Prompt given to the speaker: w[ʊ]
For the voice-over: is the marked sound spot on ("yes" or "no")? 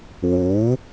no